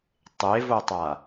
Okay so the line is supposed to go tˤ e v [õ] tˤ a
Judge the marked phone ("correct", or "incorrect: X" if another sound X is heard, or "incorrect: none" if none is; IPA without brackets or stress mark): incorrect: o